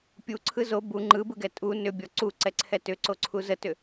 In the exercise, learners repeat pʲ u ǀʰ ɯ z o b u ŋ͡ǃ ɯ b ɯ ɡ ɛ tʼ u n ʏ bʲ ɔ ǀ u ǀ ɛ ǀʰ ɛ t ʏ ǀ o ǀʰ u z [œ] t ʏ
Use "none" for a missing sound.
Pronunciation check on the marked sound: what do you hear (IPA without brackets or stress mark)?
ə